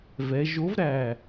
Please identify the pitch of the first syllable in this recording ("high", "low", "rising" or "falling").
rising